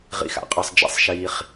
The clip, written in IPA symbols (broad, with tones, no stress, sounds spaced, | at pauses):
ʁ ḭ˨ x a̰˨ qʼ əː˨ sˤ d͡ʒ ḭ˧ sˤ ʃ iː˧ χ